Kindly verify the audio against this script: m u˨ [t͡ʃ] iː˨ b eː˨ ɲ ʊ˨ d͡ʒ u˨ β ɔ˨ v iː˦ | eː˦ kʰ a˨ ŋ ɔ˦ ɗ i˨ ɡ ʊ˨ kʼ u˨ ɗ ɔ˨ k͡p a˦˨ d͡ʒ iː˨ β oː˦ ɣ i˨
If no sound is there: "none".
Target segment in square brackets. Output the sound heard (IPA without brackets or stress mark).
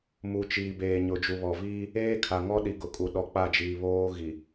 t͡ʃ